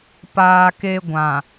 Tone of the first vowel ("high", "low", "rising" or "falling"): low